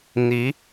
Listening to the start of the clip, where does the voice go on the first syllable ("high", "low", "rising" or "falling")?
rising